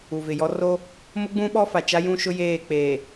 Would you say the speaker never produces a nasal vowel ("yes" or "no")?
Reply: no